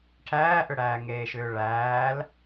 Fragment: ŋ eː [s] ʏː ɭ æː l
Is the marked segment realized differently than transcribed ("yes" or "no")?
yes